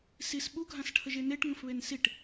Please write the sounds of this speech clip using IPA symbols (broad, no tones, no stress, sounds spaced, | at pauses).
s i s ɓ u ɡʱ ã s ʈʰ ə ʒ e n e ʈ ŋ ə̃ f β e n s i ʈ